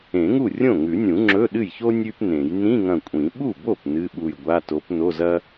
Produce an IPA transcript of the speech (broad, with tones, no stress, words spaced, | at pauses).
ẽ˨˩˦ŋu˥˩ rʲõ˥˩ŋʉ˨˩˦nʲũ˨˩˦ ŋ͡ǁɵ˧˥˧ɗɨ˥˩jço˥ nʲʉ˥pnẽ˨˩˦j nĩ˧˥˧ŋɐ̃˧˩kʷʼĩ˨˩˦ ɓu˥˩bo˥˩p nɨ˧˥˧ɓu˧˩j ɡʷa˧˥˧to˨˥p no˧˥˧zɐ˥